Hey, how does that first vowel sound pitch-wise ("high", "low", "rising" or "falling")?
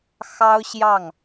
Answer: high